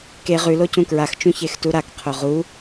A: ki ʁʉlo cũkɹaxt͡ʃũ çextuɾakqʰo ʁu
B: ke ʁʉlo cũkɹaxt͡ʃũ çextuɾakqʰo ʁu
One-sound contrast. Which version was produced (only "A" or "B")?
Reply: B